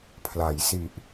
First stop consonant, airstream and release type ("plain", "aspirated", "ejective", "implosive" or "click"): aspirated